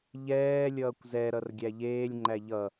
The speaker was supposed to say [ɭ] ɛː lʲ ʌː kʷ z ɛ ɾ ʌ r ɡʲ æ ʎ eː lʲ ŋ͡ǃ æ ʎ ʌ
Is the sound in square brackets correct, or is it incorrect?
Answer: incorrect